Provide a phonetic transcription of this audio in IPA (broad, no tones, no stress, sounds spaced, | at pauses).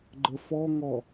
ɡ͡ǃ ə f ɔ ŋ ɔ